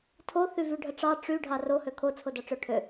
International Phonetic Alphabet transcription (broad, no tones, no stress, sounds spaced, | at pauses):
tʰ o θ y v y ɖʱ ə ʈ͡ʂ ɑ ʈ͡ʂ y ɖʱ ɑ r o h ø kʰ o t͡sʰ o d ɑ ʈ͡ʂ ø ʈʰ ø